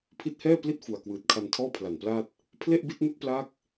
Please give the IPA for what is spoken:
pʰ i˦˥ t̚ h ɛː˥˩ p l i˥˩ t̚ f u˨˩ a̯ k w ɯː˨˩ t̚ kʰ a˧ n tʰ ɔː˥˩ pʰ l a˨˩ n p l aː˥˩ t̚ | pʰ l e˥˩ ʔ b i˥˩ t̚ n u˥˩ k̚ p l aː˥˩ k̚

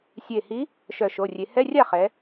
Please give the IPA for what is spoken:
sʲ e˧˩ h i˧˥ | ʃ œ˧˩ ʃ o˩˧˩ rʲ e˩˧ h ɛ˧˥˧ rʲ a˥˩ χ ɛ˩˧

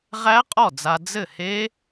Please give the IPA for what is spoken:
ʁ æ˦˥ qʼ ɔ˥˩ d͡z a˧ d͡z ɘ˥˩ h e˦˥

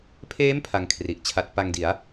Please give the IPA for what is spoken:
pʰ eː˦˥ m pʰ a˧ ŋ kʰ r i˨˩ ʔ t͡ɕʰ a˦˥ t̚ p a˧ ŋ d i˩˦ a̯

